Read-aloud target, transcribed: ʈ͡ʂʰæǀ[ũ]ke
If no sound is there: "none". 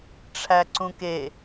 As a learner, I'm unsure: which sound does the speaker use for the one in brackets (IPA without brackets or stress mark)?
ũ